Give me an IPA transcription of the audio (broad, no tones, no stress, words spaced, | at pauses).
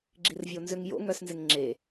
ɡ͡ǁirvʲonzʏŋjo̰ ŋœsnzɪŋŋ͡ǁe